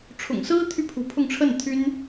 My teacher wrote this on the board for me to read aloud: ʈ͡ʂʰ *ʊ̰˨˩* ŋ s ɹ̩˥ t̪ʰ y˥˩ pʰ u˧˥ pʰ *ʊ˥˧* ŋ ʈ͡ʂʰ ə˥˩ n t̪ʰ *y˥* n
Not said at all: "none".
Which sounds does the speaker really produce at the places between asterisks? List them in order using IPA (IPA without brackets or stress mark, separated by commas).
ʊ̰˨˩, ʊ˥˧, y˥